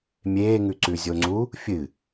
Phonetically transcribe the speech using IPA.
mʲeːŋʉ ǀʉzʲoŋ͡ǀu | fʲɨ

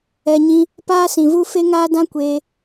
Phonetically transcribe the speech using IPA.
ɛ˨ɲĩ˧ | paː˦sĩ˨vu˦ fe˦ŋaː˦dã˦ kʷeː˧

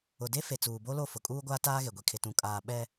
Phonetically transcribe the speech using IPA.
ʊ˨de˦fe˨ t͡suː˨bo˦lo˦˨ fʊ˨kʼuː˦ɡʷaː˦ taː˦ɣe˨ɡʷi˨ kʰɪ˨tũ˨kʼaː˨ ɓɛ˨

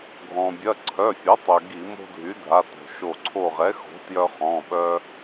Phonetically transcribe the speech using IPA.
ɡʱɔ̃˩bʲɐ˩˧˩ ǀʰœ˩˧˩fʲɐ˩˥tˤø˩ ɡi˧˩˧mo̤˦dʱy˩˥ dʱa˩˧˩to̤˩ʃo˧˩ ǀʰo˧˩ʁɛ˩˥xo̤˩˥ tjœ˦χɔ̃˩˧˩ɓœ˦

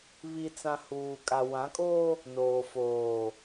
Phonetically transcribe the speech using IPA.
βi˨t͡sã˨ huː˨kʼa˨wã˨˦kʼoː˦ | noː˨foː˨

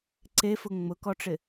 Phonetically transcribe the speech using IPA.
ǀefʊ ŋ͡mʊkɔʈ͡ʂɪ

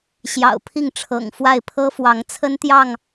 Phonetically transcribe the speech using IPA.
ɕjɑ̰˨˩ʊ̯pʰi˥˨ŋʈ͡ʂʰɤ̰˨˩ŋfwa˥˨ɪ̯ pʰɤ˦fwɑ˨˦ŋt͡sʰə˦nt̪jɑ˥˨ŋ

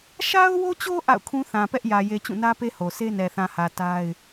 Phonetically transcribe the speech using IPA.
ʃa˦ʊ̯wo˦t͡ɕo˦ ʔa̰˦˨ʊ̯kʰũ˦ θã˨pɛ˦ʔjä˨je˨ t͡ɕũ˦˨nä˦pe˦ho˨ se˦nɛ˨θã˨hä˨ ta˦ɪ̯

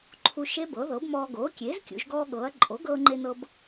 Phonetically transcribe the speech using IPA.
ǃʰu˧ ʃe˦˥bɤ˩˥ðɤ˩˥bmɔː˧ ɡoː˩˥kʲeː˩˥zkʲṵ˩˧ʒ ɡɔː˧ɠɤː˩˧ɐ̯ ǃʼo˩˥ɡɤː˧ŋ͡ǃe˧nɤ˧b

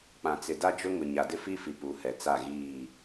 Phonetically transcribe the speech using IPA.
k͡pã˨t͡sɪ˨da˦ d͡ʒʊ˦ŋʊ˨ ɲa˨dɪ˦fi˦fi˨ pu˨˦hɛ˨ t͡sa˦˨ɣiː˦˨

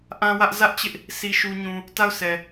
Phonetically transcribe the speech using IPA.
ʔã˦wä˦ʔ zä˦ʔt͡ɕɪ˦ʔ | si˦ʃu˦ɲũ˦ | ta˦˨ʊ̯sʰɛ˨

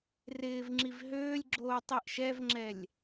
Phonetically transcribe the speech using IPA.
rɪːvŋ͡ǁiv ɦøːlʲɡ͡ǁoː tˤiʔʃɛvŋ͡ǁɛlʲ

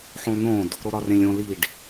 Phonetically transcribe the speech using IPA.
ħõlˠnõd | ɾoɾɒrẽlʲõ liɖ

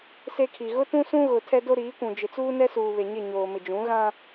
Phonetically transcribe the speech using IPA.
se˦kʰi˨ ɣʊ˦tũ˦sũ˦ ɣʊ˨ tʰɛ˦do˦ɾiː˨˦kʷũ˨ d͡ʒɪ˨t͡suː˦nɛ˦suː˨ βe˨ɲɪ˦˨ɲoː˨ mɪ˨d͡ʒũ˨˦ ɣã˦

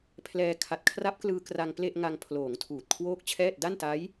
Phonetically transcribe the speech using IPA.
pʰlɛː˧ kʰa˨˩t̚kʰra˦˥p̚klɯː˧ kra˧ŋ ple˥˩ʔŋa˧ŋ pʰloː˩˦ŋ tʰuː˨˩t̚kʰwoː˥˩k̚t͡ɕʰɛː˥˩t̚ da˥˩nta˦˥j

